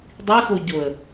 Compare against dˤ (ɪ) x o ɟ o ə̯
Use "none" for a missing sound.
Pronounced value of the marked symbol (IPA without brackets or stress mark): i